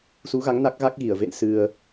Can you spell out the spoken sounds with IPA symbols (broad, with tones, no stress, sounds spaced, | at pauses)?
s u˨˦ ɣ a˨˦ ŋ n a˦˥ k̚ ɣ a˦˥ k̚ ɣ i˧˩ ə̯ v ḛ˧˨ n s ɨ˧ ə̯